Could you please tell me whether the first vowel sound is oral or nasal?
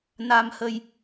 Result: oral